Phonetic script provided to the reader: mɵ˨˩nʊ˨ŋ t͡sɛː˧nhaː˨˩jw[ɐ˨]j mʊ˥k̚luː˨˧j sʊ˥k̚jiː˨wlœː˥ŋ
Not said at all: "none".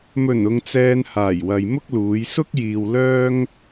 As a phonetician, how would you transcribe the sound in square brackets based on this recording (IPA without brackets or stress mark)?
ɐ˨